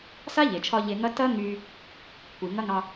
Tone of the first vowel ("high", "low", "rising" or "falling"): high